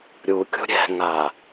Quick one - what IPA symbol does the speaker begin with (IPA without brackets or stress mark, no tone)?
ɾʲ